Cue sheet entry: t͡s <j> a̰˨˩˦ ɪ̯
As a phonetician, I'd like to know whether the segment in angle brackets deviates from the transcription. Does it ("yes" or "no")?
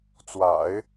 yes